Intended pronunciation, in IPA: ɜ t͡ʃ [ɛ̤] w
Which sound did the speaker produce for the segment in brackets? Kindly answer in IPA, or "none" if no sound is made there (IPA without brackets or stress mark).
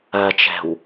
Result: ɛ̤